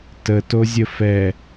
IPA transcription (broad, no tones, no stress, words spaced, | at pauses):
tətozʲə fɛ